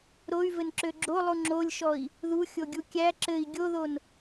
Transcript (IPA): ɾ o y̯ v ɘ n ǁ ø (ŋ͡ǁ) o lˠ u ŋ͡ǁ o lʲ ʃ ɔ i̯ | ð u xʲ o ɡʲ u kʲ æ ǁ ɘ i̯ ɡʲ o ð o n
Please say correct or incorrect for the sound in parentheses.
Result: incorrect: ɡ͡ǁ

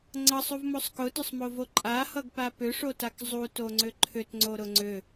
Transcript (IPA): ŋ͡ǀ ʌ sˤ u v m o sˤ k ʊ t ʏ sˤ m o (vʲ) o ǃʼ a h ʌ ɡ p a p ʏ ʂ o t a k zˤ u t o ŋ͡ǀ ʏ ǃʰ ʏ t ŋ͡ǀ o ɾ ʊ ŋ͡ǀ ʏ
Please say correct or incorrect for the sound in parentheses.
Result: incorrect: v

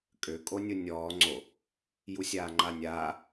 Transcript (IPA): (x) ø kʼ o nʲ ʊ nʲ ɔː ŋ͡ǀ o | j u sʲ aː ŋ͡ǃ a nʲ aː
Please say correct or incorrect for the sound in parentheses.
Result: incorrect: kʼ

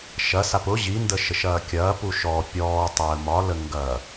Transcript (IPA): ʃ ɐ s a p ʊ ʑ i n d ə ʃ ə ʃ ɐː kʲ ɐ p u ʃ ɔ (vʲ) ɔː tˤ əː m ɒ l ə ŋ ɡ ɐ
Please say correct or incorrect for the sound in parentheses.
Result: incorrect: pʲ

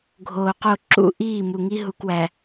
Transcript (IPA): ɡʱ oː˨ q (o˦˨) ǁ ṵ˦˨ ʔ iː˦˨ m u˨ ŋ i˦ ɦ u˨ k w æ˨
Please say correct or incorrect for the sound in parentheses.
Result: correct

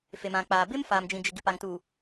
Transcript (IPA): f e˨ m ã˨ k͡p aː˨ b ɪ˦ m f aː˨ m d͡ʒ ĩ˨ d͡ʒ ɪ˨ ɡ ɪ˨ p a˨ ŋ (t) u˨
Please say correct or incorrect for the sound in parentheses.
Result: correct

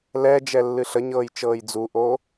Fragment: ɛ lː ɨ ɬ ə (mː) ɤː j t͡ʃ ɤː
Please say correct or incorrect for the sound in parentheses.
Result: incorrect: ɲ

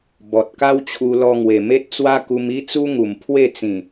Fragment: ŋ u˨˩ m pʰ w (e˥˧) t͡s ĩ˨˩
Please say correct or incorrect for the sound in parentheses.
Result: correct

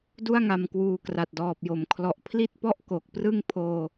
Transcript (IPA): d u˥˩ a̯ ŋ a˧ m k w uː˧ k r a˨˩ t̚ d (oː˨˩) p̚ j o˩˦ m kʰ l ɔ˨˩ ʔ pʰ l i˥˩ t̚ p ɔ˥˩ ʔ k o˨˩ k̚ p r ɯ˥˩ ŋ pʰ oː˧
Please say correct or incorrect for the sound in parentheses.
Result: incorrect: ɔː˨˩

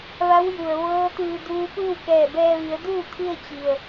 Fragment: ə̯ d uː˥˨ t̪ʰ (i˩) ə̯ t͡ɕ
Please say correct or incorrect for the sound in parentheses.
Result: incorrect: i˧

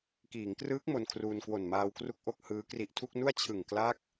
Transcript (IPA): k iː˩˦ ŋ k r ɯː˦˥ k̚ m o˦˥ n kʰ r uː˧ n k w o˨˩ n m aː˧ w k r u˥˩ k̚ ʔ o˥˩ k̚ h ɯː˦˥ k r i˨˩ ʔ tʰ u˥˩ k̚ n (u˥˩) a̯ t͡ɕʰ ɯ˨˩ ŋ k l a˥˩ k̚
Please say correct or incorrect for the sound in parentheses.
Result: correct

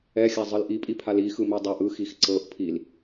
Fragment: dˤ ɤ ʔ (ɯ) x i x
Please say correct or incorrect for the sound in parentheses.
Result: correct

